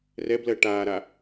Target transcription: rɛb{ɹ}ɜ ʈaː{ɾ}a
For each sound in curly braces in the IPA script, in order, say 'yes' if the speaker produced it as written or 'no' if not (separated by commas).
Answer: no, yes